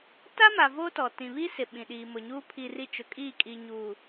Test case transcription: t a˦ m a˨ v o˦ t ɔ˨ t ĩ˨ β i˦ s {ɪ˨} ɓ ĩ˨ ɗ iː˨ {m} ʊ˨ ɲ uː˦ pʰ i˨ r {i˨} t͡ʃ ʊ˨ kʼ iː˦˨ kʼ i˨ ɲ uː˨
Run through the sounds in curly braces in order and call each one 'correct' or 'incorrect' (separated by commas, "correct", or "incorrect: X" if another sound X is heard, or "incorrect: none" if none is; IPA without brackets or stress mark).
correct, correct, correct